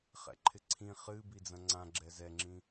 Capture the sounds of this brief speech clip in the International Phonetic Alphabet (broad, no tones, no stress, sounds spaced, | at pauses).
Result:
χ ɛ̰ ǃʰ ɪ ǀʰ ĩ χ ɨ b i d͡z ɐ̃ ŋ͡ǀ ã ɡ͡ǁ ɛ z ɛ ŋ͡ǁ ĩ